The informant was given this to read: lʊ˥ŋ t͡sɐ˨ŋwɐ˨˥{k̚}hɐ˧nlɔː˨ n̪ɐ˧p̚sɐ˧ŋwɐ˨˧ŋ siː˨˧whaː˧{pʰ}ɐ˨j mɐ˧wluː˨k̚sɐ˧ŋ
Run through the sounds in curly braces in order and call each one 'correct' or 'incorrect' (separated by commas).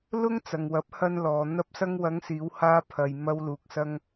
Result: incorrect, correct